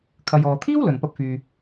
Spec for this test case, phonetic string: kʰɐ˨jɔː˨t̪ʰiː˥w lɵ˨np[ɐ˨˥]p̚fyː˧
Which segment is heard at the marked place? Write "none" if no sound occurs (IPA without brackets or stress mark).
ɐ˥